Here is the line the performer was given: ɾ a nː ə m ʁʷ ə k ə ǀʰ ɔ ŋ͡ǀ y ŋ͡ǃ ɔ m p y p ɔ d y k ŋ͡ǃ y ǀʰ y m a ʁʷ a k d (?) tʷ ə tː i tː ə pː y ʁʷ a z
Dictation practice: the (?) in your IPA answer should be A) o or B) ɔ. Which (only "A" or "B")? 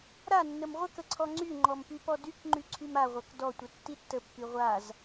B